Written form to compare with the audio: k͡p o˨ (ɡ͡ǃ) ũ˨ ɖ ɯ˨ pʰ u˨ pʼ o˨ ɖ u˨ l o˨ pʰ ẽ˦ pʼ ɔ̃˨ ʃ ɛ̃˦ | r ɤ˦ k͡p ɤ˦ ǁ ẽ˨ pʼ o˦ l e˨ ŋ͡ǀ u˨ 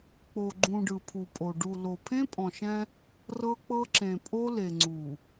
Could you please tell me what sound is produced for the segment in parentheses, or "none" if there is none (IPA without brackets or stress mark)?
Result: ɡ͡ǃ